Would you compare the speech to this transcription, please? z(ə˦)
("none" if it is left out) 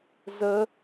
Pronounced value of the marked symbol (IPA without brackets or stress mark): ə˦